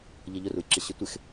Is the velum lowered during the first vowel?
no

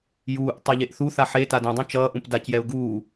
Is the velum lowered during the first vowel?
no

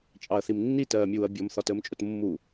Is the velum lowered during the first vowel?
no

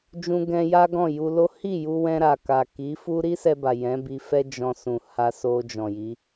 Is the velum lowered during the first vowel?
yes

